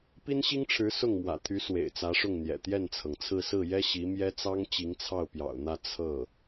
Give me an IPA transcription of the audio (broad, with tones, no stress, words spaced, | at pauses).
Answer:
pi˥nɕi˥ŋʈ͡ʂʰɻ̩˧˥ sʊ˥˩ŋmwä̰˨˩t̪ʰy˧˥ swḛ˨˩ɪ̯t͡sä˧˥ʂʊ˥˩ŋn̪jɛ̰˨˩ t̪jɛ˥˩nt͡sʰɤ˩ŋt͡sʰɹ̩˥˧ sɹ̩˥˩jɛ˥ ɕi˧˥mjɛ˥t͡sɑ˥ŋ t͡ɕi˧˥ŋt͡sʰɑ˥˩ʊ̯pjɑ̰˨˩ʊ̯n̪ä˥˧ t͡sʰɤ˥˩